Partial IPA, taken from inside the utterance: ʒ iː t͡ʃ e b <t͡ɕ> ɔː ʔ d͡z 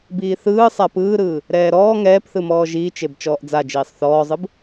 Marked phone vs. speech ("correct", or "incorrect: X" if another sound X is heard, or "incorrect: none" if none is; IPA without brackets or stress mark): incorrect: t͡ʃ